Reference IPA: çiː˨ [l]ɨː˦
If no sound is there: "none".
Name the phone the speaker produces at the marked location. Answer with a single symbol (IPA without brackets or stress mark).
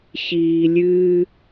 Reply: lʲ